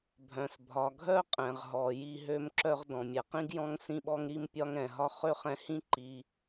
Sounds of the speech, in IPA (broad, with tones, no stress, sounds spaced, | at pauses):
bʱ œ̃˩ s bʱ ɒ˩ ɡʱ œ˥ qʼ ɛ̃˩ ʁ ɦ ɔ˩ j i˧ ɦ ø˧ m ǁ œ˧ ʁ d ɔ̃˩ mʲ ɛ˩ q ĩ˥ ɡ j ɔ̃˥ ŋ s ĩ˥ ɓ ɔ˥ ŋ ɾ i˥ m pʲ ɒ˥ ŋ ɛ̃˩ ɦ ɒ˥ χ ø˥ χ ɛ̃˧ h ĩ˥ ǃ i˧